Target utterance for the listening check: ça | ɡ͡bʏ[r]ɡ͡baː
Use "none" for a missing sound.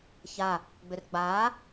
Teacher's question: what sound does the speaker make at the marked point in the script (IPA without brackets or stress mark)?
r